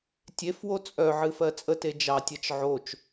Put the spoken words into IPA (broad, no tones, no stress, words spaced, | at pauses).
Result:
tʲefwo t͡sʼœʕɨ fɜt͡sʼəte d͡ʒɑtʲɜt͡ʃ ʕot͡ʃ